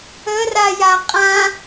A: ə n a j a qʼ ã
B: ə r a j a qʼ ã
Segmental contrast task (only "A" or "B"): B